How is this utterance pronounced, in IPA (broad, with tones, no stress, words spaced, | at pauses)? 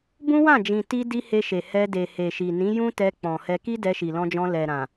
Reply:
bũ˦wã˦˨d͡ʒĩ˨ ti˧di˧ he˧ʃe˨hɛ˧de˨ he˨ʃi˨nĩ˨˦ jũ˦tɛ˧ k͡pɔ̃˨hɛ˧ ki˦ dɛ˧ʃi˨lɔ̃˧d͡ʒɔ̃˧ lɛ˨ ɾã˨